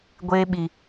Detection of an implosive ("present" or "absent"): present